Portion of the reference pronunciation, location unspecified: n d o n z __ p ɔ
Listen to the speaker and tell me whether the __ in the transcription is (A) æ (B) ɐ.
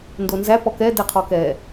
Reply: A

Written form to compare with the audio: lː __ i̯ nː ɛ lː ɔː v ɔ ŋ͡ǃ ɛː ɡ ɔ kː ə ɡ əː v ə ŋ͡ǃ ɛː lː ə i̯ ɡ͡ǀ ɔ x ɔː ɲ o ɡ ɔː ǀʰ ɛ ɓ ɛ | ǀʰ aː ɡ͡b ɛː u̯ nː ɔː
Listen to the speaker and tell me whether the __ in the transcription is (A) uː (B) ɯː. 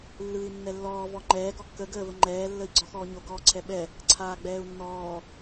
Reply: B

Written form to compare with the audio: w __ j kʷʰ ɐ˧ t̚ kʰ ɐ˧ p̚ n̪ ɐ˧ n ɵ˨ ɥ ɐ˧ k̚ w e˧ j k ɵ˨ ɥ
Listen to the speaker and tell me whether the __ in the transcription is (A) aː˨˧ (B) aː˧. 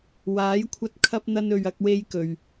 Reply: A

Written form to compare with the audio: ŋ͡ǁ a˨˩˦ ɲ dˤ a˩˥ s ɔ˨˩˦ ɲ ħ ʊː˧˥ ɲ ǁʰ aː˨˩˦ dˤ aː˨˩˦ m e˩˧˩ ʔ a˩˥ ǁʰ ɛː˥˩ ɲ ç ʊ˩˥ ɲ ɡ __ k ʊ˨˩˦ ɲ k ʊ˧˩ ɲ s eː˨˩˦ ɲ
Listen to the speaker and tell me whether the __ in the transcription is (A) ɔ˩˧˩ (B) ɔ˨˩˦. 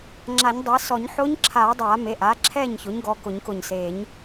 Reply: A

